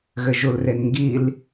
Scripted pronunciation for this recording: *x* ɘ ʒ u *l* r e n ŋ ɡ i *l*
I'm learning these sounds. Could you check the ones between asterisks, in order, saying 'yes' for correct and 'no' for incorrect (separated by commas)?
no, yes, yes